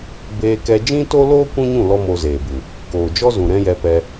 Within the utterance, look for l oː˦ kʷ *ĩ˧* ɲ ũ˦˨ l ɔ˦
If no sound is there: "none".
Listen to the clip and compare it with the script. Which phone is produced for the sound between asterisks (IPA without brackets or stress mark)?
ĩ˦